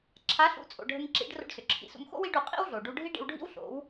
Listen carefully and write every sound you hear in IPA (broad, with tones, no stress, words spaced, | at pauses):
ǁʰa˩˥ɬṵ˩˥t͡sʼo̰˩ ɖʱə˧ŋǁḭ˩˥ɖ ro̰˧ɖsʏ˩ǁʰḭ˧sṵ˧m xo̰˥wi˩˥ɖu˩ qʼḭ˥wɮo˩ ɖu˧ɖʱi˥ ɖḭ˧wɖʱḭ˥w ɬo̰˩˥w